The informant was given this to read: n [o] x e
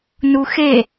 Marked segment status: incorrect: u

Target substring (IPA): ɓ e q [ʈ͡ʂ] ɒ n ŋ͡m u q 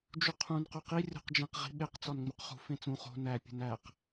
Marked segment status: incorrect: t͡s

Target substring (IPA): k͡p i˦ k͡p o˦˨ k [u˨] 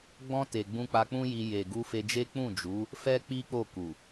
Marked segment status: correct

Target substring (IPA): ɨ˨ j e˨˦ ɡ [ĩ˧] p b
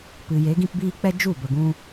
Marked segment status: correct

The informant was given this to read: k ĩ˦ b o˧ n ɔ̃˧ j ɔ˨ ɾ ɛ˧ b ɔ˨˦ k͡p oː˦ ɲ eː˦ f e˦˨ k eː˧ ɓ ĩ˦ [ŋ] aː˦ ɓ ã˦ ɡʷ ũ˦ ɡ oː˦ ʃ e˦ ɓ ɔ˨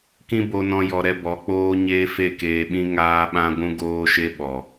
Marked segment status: correct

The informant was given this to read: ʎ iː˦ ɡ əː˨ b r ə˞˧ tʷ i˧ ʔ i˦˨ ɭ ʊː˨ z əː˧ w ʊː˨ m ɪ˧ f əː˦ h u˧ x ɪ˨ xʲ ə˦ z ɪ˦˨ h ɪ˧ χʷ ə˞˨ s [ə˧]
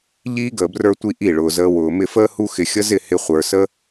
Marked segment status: incorrect: ə˦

